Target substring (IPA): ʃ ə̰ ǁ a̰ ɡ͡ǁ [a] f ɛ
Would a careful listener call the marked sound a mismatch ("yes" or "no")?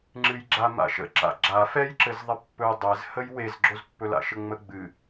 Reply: no